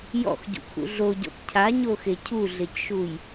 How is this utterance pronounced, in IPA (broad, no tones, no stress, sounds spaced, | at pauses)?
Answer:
j ɔ̰ x ɟ ṵ kʰ ṵ ɮ o ɟ ɔ̰ p cʰ a ɲ o x e cʰ u ɮ e c ʃ u j